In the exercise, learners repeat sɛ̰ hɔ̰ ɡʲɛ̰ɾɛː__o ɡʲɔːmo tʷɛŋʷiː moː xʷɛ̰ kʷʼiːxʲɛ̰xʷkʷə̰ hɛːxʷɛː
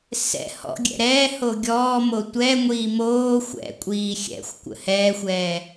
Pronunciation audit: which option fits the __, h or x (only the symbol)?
h